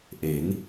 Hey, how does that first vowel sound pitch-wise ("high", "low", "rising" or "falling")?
rising